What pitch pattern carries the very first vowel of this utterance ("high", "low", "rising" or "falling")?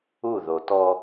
falling